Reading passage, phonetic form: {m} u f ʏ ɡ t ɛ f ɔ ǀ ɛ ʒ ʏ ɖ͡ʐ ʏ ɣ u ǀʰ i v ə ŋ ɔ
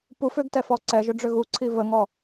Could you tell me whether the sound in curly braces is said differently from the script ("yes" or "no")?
yes